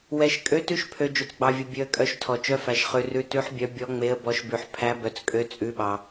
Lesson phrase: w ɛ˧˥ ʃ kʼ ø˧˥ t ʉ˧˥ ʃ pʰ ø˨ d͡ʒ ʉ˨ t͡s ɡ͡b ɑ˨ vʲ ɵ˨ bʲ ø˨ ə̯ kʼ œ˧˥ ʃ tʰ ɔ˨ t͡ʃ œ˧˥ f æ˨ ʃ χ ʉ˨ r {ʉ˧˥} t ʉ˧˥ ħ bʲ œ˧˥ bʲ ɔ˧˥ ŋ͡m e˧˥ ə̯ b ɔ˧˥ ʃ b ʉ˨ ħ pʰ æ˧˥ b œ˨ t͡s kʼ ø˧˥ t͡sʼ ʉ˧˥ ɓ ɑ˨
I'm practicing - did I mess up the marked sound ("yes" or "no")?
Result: no